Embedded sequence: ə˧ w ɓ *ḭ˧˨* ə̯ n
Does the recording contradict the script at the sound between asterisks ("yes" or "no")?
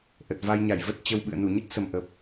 yes